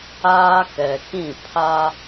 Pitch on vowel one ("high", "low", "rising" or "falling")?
high